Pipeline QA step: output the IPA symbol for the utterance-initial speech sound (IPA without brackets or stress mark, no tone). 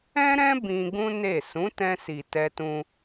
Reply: ɛ̃